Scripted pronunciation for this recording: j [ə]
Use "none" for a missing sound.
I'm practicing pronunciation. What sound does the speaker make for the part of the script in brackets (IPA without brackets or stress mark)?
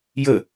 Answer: ə